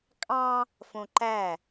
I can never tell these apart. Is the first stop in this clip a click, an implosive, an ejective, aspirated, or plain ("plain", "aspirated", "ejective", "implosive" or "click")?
ejective